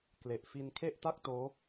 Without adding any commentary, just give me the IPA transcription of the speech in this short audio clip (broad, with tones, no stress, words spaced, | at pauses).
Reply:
kle˨˩ʔ fi˧nkʰe˥˩ʔta˥˩k̚toː˦˥